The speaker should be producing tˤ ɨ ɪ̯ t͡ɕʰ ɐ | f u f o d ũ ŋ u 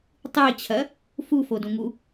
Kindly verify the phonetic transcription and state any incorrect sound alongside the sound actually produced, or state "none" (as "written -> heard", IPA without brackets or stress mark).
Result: none